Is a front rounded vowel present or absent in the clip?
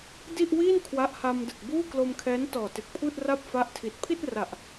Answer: absent